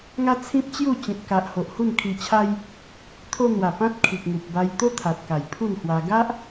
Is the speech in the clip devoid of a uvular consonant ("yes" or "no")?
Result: yes